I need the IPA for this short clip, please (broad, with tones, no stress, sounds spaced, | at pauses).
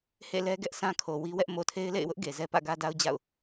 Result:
h ḛ˦˨ l ɛ˦ ɡ ɛ˦ ʔ sʰ ã˦ kʰ o˨ w i˦ w ɛ˦ ʔ m o˨ tʰ e˦ ɪ̯ l ḛ˦˨ ɪ̯ w ʊ˦ ʔ ɡ e˨ z ɛ˦ p ä̰˦˨ ɡ ä˦ d a˦ ʊ̯ d͡ʑ a̰˦˨ ʊ̯